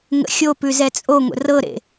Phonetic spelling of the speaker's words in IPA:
ŋ ə̰ xʲ o p ʉ z ɛ t͡sʼ o ŋʷ ə̰ r ɤ ɾ ḛ

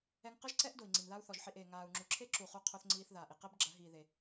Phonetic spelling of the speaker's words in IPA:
ɛ˧ ŋ q ɨ˦ ʒ ǀ ɛ˦ ʔ d o˨ i̯ ŋ͡ǀ i˨ n ð a˦ u̯ θ ɔ˨ ʒ ħ i˧ ʔ eː˨ ŋ aː˨ u̯ ŋ͡ǁ u˨ ǁʰ e˦ ǁ u˧ χ u˦ qʰ o˦ θ ŋ͡ǀ iː˦ θ ð aː˨ ʔ i˧ q e˦ b ɡ͡ǁ ɐ˨˦ ɦ iː˨ ð e˨

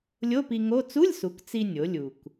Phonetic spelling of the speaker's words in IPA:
lʲ o˧˥˧ p i˧ ŋ o˧˥˧ t͡s u˧˥˧ lʲ s u˩˧ k t͡s i˧ nʲ o˩˧ lʲ u˩ k

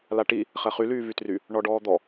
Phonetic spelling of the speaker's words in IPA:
l a ʈ i | χ ɛ χ y l yː v y t r y | ɳ ɔ ɖ ɔː d̪ ɔ

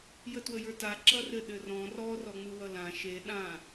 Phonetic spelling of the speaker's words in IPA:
j ə t w ə j ə˞ t a ǁ ʌ r ɘ ɗ ɘ r ɔ̃ r ɔ r ɔ ŋ͡m ɯ w ʌ l ã ʃ e ɗ ã

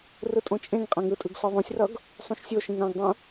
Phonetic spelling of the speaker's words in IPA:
r ɯ tʼ õ t͡ʃʼ ẽ ŋ qʼ ã ŋ ɯ tʼ ɯ ɡ s ɯ ðˤ õ sʲ r ʌ ɡ | sˤ ũ ʃ sʲ o ʃ ĩ ŋ ã ɡ dˤ ũ

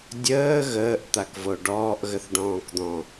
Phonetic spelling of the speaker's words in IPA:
dʲ əː ɣ əː ʔ t̪ a k v o ɖ ɔː ʔ ɣ ə θ ɖ ɔ̃ː k d̪ ɔ̃

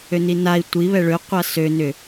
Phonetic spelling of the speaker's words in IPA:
ø n i n a i̯ tʷ i β ɛ ɭ ø qʷ a s ø n ʏ

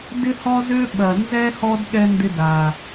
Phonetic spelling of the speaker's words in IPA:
d ɪ˦ h ɔ˦ z ø˦ ɓ ɐ˨ n z ɛ˧ h ɔ˦ d ɠ ɛ˧ n d ɪ˧ d a˨

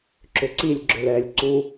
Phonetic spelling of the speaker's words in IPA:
ǁ ʏ ǀ i lʲ ɡ͡ǁ ʏ l ɛ lʲ ǀ u

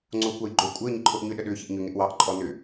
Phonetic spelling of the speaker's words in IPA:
ŋ͡ǀ oː kʷ ɑ j ɡ͡ǃ o kʷʼ əː ɲ ɪ ǃʰ o ʔ ɲ ʏ ɗ ə ɗ ʏː ç ɪ ʔ ɲ ʏ ŋ ɪ ʔ w ɑ ʔ ǃʼ ɔ n ʏː

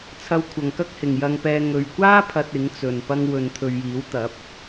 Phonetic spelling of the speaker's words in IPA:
t͡sʰ ɐ˧ w kʷʰ ɐ˨ ŋ k ɐ˥ k̚ h ɪ˨ ŋ j ɐ˧ ŋ p ɛː˧ ŋ ɵ˨ ɥ kʷ aː˥ pʰ ɐ˧ t̚ ɪ˨˥ ŋ t͡s ɵ˨ n p ɐ˧ ŋ w ɵ˨ n t̪ʰ ɵ˨ ɥ j iː˨˥ w t̪ ɐ˨˥ p̚

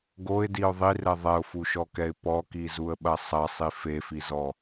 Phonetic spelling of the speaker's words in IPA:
ɡ o ɪ̯ d i ʊ̯ ðˤ i r ɛ ðˤ ɛ ʊ̯ f u ʃ ɔ k ɛ ɪ̯ p ɔ k i z u ə̯ ɓ ɐ sˤ ɐ sˤ i f e f i z ɔ

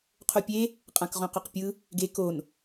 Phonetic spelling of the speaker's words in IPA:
qʰ o pʲ e | qʼ ã k ʁ õ q ɵ q pʲ ɯ | ɡ e k o n

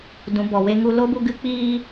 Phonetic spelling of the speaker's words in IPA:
d ũ˨˦ b ɔ˨ w e˦ ŋ u˦ l o˦ b u˧ ɡ ɨ˦ k͡p iː˦

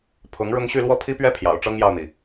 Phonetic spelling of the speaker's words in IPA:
pʰ ʊ˧˥ ŋ ɻ ʊ˥ ŋ ɕ y˥˧ l w ɔ˥˩ pʰ i˥ p ɥ ɛ˥ pʰ j ɑ̰˨˩ ʊ̯ ʈ͡ʂ ɤ˥ ŋ j ɑ˥˩ ʊ̯ n̪ i˩

